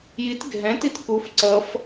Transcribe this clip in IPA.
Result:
jit ɡʱɛ̃ titkuf ǀʌf

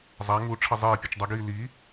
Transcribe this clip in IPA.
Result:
zˤa ŋu ʈ͡ʂʰʌzˤeːpʲɯt͡ʃ dˤʌɡiː li

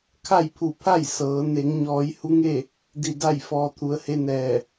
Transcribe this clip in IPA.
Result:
kʰa˥˨jpʰu˧˩pʰa˥˨j sɤː˩˧ ne˩˧ŋɲɔː˩˧j hu˧˥ŋe˥˨ | di˧˩da˥˨j fɔː˧t̪ʰu˩˧ə̯he˧˥nɛː˧˩

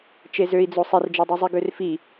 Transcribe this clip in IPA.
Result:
t͡ʃezøi̯d͡zo sˤerd͡ʒedˤyzˤi ɡørfi

